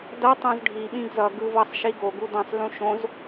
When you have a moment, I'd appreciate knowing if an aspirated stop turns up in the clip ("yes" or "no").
no